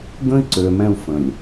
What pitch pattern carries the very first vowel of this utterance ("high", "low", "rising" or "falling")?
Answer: high